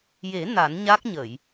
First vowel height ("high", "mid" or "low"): mid